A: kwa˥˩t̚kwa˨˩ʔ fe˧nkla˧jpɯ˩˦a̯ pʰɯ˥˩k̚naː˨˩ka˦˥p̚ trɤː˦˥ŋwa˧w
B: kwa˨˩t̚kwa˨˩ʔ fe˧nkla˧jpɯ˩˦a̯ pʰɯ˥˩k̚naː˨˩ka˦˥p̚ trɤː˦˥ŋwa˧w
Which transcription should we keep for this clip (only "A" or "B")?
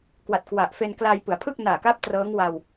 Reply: B